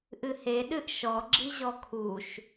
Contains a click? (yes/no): yes